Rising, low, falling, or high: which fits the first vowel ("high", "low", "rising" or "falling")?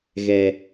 low